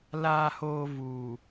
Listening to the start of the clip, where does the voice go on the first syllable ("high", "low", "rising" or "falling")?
low